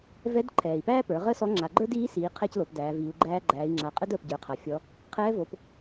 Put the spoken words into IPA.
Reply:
vɛ˧˥d ǃʰɛː˩i̯pæː˥pə˞˩˧ ʁəː˥sɔ˧˥ŋ͡ǁa˩˧ ɡ͡ǃə˞˥diː˧˥siː˩˧ qʰɛ˧c lo˩˧pdæː˩˧viː˩˧u̯ɡ͡ǃæː˥ ɡ͡ǃæː˩˧i̯ŋ͡ǁa˩˧qʼə˥dəː˩p ɟə˞˩˧qʰa˩fʲɔ˧˥ | qʰɛː˧˥vo˩˧p

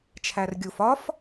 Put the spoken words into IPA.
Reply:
t͡ʃʰærɡʲuf ɒf

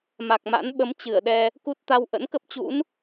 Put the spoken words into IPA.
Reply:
ma˨˩k̚ma̰˧˥n ɓə˨˦m t͡ɕɨ˧˩ə̯ɗɛ˧ | ku˦˥t̚t̪a˧w ʔə̰˧˥nkə˦˥p̚t͡ɕṵ˧˥n

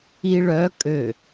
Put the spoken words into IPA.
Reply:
iɭ œ kʼø

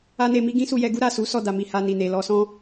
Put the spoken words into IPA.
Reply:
a˦ne˧mi˦ ɡĩ˦su˧jɛ˧ɡu˦ ɾa˦˨su˨˦ sɔ˦˨da˨mi˨ ha˧ni˨ne˨ lɔ˧sɔ̃˦

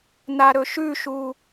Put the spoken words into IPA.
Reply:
naɾɵʃʉʃu

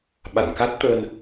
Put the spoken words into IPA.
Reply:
ɓa̰˧˨nka˦˥t̚ t̪ə˧n

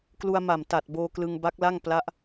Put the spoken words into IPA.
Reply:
klu˧a̯ma˨˩mta˨˩t̚ boː˧klɯ˧ŋ ba˦˥k̚la˥˩ŋ pla˦˥ʔ

